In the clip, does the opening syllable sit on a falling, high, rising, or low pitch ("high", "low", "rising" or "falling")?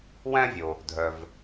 high